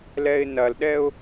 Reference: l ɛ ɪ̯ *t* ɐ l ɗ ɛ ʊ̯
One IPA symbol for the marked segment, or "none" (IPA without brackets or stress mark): n